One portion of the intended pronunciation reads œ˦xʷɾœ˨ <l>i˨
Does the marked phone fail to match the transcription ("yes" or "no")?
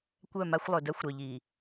yes